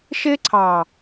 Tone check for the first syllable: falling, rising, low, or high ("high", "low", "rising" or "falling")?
high